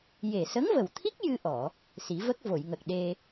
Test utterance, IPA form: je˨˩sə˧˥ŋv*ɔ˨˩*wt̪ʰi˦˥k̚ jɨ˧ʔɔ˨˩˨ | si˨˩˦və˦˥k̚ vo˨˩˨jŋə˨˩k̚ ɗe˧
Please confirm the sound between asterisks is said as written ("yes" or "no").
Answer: no